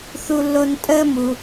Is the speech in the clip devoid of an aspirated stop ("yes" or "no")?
yes